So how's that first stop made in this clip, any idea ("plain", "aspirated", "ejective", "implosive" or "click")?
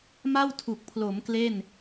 aspirated